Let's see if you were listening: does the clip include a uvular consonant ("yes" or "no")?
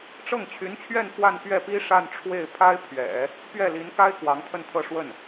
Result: no